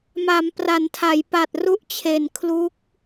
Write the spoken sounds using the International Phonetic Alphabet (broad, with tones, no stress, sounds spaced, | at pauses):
m a˩˦ m p r a˩˦ n tʰ a˩˦ j p a˨˩ t̚ r u˦˥ ʔ t͡ɕʰ e˨˩ n kʰ l u˦˥ k̚